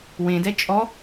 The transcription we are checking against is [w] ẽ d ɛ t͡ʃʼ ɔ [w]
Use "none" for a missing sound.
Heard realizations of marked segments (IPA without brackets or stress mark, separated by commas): w, none